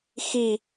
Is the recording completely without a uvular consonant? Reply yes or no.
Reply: yes